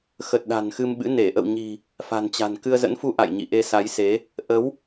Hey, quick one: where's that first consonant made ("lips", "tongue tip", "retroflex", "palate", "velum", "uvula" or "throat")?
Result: velum